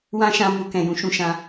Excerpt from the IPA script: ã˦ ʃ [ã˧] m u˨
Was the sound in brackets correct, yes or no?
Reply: yes